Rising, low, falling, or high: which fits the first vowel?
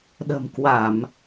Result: low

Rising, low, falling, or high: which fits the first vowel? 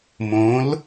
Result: rising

